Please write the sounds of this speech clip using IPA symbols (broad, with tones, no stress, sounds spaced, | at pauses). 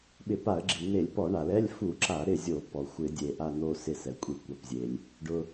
ɓ ɪ˧˩˧ p a˧˩˧ ə̯ ɡ͡ǁ i˩ n̪ e˧˩˧ lʲ p ɔ˧˩˧ ɳ a˩ l ɛ˧˥˧ lʲ f u˧˩˧ ǁ a˧˩˧ ɾ ɪ˦˨ zʲ o˧˩˧ p ɔ˩ xʷ ɪ˧˩˧ dʲ e˩ ʔ a˦˨ n̪ o˦˨ s ɪ˦˨ s ɛ˩ kʷʼ i˧˩˧ kʷ a˩ p zʲ e˩ lʲ | ɖ ʊ˩